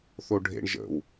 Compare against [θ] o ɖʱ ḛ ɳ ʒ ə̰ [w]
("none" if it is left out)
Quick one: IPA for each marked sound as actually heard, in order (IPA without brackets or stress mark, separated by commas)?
θ, w